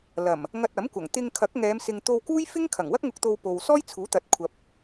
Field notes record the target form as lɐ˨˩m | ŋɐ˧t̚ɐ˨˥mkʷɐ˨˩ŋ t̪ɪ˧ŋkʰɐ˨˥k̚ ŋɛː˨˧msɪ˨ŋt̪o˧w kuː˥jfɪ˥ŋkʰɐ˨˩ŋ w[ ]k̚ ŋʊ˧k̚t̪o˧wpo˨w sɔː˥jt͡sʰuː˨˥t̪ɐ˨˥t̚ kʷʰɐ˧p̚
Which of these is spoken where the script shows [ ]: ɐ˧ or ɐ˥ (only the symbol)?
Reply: ɐ˥